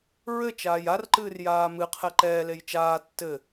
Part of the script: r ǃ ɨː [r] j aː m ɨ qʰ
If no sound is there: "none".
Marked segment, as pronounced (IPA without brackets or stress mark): r